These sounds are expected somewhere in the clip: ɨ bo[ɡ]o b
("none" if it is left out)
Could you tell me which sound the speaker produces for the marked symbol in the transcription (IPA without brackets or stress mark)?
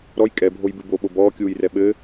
ɓ